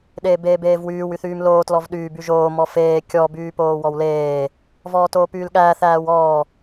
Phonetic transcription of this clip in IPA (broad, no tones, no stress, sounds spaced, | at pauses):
ɗ eː b eː b eː v w yː w y θ yː m l oː t l ɔ v ɗ yː b y ʒ oː m ɔ f eː kʲ ɔ b yː p oː w ɔ w l eː | v ɔː t oː p yː l ɠ æː θ æː w ɔː